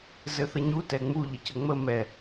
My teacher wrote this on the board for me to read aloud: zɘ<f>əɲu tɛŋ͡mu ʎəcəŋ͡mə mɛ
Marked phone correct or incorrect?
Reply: incorrect